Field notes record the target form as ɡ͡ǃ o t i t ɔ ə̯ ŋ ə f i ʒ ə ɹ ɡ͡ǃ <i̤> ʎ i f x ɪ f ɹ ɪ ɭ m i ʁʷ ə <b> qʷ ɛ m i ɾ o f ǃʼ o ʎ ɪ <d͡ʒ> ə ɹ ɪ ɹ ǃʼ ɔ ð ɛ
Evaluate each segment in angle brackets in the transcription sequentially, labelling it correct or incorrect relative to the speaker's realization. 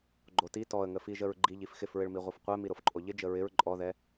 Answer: incorrect: i, incorrect: f, correct

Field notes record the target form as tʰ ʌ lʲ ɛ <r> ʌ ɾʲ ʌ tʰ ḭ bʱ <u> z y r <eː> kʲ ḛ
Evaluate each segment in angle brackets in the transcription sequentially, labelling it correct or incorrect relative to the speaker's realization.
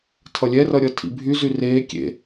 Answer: correct, incorrect: y, correct

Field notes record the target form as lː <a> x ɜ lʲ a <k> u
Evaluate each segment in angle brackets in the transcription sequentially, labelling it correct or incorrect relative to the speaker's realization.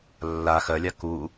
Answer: correct, correct

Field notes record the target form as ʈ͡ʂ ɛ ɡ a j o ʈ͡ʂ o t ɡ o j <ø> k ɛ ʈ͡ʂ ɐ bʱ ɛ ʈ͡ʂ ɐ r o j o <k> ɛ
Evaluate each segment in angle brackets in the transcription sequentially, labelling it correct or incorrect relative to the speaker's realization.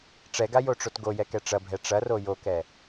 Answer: incorrect: ɛ, correct

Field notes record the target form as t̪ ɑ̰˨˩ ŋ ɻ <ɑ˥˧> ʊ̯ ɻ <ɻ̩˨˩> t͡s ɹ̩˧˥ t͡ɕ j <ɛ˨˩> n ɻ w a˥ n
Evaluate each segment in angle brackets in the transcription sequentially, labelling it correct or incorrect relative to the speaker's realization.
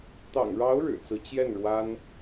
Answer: incorrect: ɑ˧˥, correct, incorrect: ɛ˥˩

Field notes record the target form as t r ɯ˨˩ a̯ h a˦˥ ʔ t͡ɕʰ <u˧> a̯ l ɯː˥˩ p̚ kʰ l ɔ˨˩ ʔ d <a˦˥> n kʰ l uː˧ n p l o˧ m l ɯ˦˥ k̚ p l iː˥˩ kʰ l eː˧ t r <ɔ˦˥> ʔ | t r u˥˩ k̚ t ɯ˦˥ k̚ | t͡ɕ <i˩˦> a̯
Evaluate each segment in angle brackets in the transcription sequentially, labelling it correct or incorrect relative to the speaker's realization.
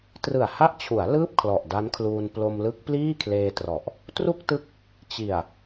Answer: incorrect: u˩˦, correct, incorrect: ɔ˨˩, incorrect: i˨˩

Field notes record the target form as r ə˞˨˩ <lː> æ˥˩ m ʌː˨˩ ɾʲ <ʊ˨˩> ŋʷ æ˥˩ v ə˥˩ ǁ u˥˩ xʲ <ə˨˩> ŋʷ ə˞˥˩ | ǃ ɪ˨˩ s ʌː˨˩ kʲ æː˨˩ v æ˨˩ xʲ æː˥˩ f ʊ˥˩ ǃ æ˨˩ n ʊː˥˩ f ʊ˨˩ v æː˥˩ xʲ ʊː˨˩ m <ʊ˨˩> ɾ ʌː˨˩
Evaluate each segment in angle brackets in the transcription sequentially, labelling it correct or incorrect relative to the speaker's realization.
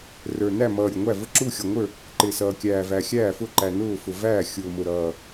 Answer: incorrect: n, correct, incorrect: ʌ˨˩, correct

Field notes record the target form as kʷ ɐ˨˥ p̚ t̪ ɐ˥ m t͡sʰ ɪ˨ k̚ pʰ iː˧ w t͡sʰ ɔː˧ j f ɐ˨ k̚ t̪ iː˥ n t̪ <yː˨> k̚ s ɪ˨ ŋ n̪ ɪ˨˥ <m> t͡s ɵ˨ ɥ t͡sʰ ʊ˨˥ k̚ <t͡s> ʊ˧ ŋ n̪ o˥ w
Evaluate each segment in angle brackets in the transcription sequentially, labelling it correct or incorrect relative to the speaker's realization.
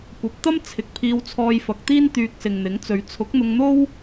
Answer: incorrect: yː˧, incorrect: ŋ, incorrect: n̪

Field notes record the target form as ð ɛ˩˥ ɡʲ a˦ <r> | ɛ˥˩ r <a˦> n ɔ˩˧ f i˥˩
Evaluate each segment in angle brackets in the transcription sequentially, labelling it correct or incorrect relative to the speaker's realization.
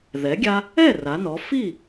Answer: incorrect: none, incorrect: a˩˧

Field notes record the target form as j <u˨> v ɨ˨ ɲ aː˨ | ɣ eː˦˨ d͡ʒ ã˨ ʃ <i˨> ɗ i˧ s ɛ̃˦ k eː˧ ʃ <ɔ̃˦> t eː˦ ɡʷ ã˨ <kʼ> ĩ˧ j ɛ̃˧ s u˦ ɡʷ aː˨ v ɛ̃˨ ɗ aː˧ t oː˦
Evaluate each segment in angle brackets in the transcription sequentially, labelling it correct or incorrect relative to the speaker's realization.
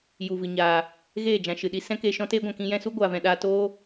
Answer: correct, incorrect: ɨ˨, correct, incorrect: k

